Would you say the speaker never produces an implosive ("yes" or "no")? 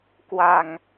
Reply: yes